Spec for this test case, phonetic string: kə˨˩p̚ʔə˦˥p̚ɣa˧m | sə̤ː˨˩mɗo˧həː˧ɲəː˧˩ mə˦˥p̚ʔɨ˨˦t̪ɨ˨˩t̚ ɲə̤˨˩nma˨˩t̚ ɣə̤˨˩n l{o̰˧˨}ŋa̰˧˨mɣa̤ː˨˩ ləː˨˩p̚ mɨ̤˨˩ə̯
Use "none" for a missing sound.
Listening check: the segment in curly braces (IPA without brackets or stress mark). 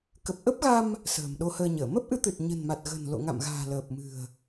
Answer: o̰˧˨